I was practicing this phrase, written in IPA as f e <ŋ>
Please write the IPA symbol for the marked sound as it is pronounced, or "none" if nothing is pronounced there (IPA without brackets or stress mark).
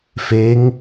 ŋ